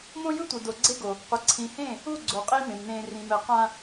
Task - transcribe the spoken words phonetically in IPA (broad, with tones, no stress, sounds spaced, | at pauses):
m õ˦ j ɯ˦ tʷ ɯ˨ d o˨ ɡ͡ǀ e˦ ɡ o˨ | qʷ ʌ˨ ǀʰ ĩ˨ h ẽː˦˨ | u˦˨ ɡ͡ǀ o˨ qʼ i˦ m ẽ˨ m n ẽː˦ r ĩ˨ m ɛ˨ q ã˦